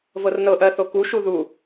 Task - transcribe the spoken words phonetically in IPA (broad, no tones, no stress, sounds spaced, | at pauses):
v ɤ r n ɤ ʔ ɜ θ o k u ʃ u ð u